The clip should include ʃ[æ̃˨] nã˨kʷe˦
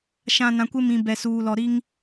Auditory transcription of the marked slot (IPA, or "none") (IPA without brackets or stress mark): ã˨